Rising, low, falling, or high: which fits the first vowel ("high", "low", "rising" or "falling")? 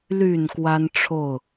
low